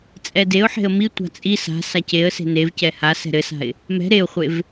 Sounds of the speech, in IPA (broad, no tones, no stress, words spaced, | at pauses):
t͡sʼɛdeʊ̯ħe̤ə̯ mitʷa̤ t͡sʼi sa̤ saceə̯se̤ nevcɛ ha sɛ̤ɾɘsa̤ɪ̯ | mɛ̤ ɾeʊ̯χʷev